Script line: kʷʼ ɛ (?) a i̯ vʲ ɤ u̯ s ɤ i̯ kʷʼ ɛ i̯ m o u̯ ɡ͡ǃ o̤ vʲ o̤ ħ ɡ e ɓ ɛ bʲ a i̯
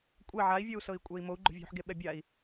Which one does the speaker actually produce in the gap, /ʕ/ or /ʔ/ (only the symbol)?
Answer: ʕ